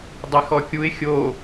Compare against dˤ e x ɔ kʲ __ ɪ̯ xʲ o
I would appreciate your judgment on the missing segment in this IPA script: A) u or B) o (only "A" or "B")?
A